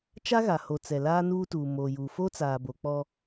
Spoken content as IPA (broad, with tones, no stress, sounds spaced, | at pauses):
t͡ʃ a˦ ɣ a˨ h o˨ t͡s ɛ˨ l aː˦ n uː˦ t uː˨ m oː˨ j uː˨ f o˦ t͡s aː˨ b o˨ k͡p ɔ˦